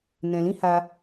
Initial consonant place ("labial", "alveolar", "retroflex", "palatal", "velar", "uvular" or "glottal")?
alveolar